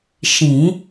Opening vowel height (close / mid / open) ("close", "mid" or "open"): close